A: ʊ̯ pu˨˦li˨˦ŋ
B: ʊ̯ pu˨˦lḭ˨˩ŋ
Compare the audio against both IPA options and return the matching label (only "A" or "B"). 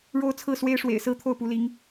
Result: A